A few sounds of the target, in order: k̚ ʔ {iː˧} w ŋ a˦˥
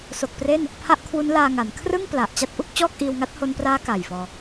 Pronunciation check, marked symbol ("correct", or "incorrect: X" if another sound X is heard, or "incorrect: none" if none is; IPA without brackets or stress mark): correct